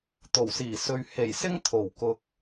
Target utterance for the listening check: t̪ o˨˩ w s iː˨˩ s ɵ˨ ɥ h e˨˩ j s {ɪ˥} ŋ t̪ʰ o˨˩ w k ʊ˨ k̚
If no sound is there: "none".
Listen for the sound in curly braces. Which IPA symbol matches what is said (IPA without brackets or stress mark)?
ɪ˥